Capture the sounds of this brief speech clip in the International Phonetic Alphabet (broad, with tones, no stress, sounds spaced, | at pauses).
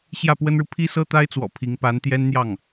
ɕ j ä˥˩ p w ə˥ n ɻ u˨ pʰ i˥ s ɤ˥ t̪ a˥ ɪ̯ t͡s w ɔ̰˨˩ pʰ i˧˥ ŋ p a˧˥ n t̪ j ɛ˥ n n̪ j ɑ˥˩ ŋ